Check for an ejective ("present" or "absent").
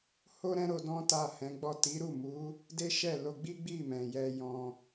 absent